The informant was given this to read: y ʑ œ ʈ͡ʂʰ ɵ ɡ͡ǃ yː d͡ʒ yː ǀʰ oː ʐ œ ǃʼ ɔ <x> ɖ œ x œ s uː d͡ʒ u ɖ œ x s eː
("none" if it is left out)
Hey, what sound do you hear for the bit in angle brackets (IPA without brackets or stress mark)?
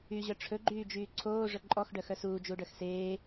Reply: x